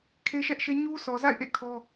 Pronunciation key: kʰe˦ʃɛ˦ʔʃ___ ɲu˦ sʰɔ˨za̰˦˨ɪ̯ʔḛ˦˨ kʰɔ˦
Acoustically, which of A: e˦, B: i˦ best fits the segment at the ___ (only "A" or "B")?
A